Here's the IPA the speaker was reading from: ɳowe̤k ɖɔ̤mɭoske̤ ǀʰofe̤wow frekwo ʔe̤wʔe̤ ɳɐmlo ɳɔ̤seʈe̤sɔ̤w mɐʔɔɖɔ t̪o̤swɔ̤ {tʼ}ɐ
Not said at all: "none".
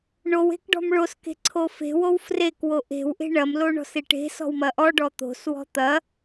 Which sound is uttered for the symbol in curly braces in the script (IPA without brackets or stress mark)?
t̪